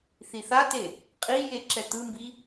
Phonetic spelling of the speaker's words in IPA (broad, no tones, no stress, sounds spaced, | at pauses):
θ i θ a t e | qʼ i j e ǁ ɛ t̪ ɯ m b i